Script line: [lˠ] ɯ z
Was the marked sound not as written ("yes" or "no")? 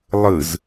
no